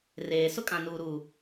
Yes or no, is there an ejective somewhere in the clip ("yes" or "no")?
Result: yes